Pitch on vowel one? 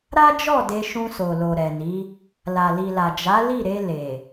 high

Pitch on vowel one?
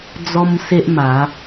high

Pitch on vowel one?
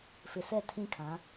low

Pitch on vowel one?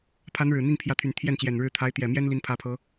rising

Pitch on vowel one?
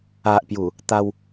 low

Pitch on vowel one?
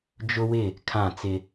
high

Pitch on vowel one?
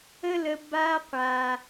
high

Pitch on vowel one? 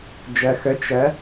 low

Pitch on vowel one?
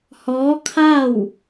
rising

